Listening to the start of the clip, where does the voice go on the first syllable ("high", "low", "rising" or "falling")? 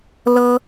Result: high